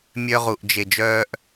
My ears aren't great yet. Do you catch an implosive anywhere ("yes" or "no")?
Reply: no